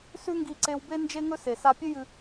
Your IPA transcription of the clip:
s ʉ˥ ŋ ɡ i˧ ǀ e˧ w b e˥ n d͡ʒ e˧ ŋ ɵ˧ s e˩ s a˧ pʲ ɨ˥ j ɨ˧

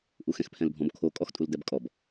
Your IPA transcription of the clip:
ʔ u x ɛ̃ x pʰ ɛ̃ l bʱ ɔ̃ b kʰ o kʼ ɔ x tʼ u l d ɛ b kʼ ɔ b

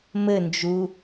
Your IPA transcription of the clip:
m ɘ n d͡ʒ u

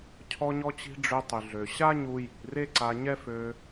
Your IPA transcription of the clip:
cʰ ɔ˧ ɲ ɔ˧ t͡ɕ i̤˧ ɖ͡ʐ ø˧ tˤ y˩ ɮ ø˩ ɕ a˥ ɲ u˧ j i̤˩ r e˥ ǀ a˧ ɲ ɛ˥ f ø˧

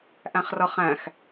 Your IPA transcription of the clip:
ʔ æ̃ χ r ʌ χ æ̃ x

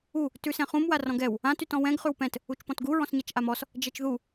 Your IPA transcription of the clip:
u | t ʉ s ɛ̃ χ ũ m w a r ɔ̃ ɡ ɛ w | ã t y t ɔ̃ w ɛ̃ ɡ χ ʉ w p ɛ̃ t | u t͡ʃ p ɔ̃ t ɡ u ɹ ɔ̃ s ɲ a t͡ʃ ʔ a m ɔ s | d͡ʒ ɛ t͡ʃ ð u

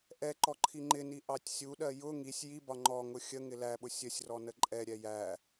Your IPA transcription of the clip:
ʔ ɛ ǃ ɔ ǃʰ i ŋ͡ǃ ɪ n i ʔ ɑ tʲ sʲ u ɗ ɜ j ʊ ŋ i sʲ j i b ɒ ŋ͡ǃ ɔ ŋ ʊ xʲ ə ŋ ɪ l æ ɓ ʊ sʲ ə sʲ r ɔ n ə ǃʼ ɛ ɾʲ ɛ j æ

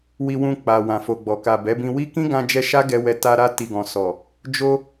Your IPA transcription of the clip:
w i˧ w ũ˧ k͡p a˨ w ã˨ f o˨ ɡ͡b ɔ˨ k a˨ b ɛ˨˦ b ĩ˧ w i˦ k ĩ˦ ɡ ã˧ d͡ʒ ɛ˧ ʃ a˦ ɡ ɛ˧ w ɛ˧ t a˧ ɾ a˧ t i˨ ɡ ɔ̃˨ s ɔ˨ | d͡ʒ o˧

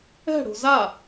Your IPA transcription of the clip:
ɛ̤ ɽ o̤ z a

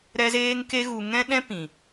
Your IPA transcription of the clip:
ɾ ɛ˦ z eː˦ ŋ k e˦ ɣ u˧ ŋ ɛ̃˦ ɗ ɛ̃˦ p ĩ˨

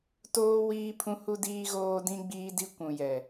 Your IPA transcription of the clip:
t oː˦ w iː˦ pʰ ũ˦ h u˦ d iː˦ ɣ oː˦ d ĩ˦ ɡ͡b iː˦ d i˦ kʷ ũ˨ j ɛ˨

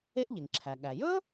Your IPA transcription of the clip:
e˥ ʔ ʎ e˩ ŋ ǁʰ æ˩ ɠ æ˩ j ɵ˥

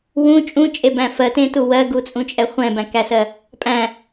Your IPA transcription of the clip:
w ũ t͡ʃʼ ũ t͡ʃʼ e b æ̃ f ɜ t ẽ t u w ɜ ɡ u t͡sʼ ũ t͡ʃʼ ɛ χʷ ɛ̃ b æ̃ k æ s ɜ | pʼ æ̃

